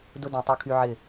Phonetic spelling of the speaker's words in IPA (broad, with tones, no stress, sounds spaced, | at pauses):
d ʊ˦ d ĩ˨ tˤ u˧ kʰ y˧ ʕ ɪ˦˨